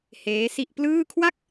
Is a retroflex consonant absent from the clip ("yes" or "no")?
yes